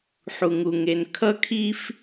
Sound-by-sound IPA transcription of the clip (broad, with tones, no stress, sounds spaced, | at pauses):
ħ u˩ ŋ u˩ ŋ e˩ n kʰ ʌ˥ kʰ i˥ f